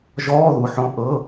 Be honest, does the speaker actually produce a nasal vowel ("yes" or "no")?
yes